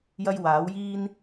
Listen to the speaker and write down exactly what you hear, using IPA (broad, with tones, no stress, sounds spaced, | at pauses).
j ɐ˥ j w aː˨˥ w j iː˥ n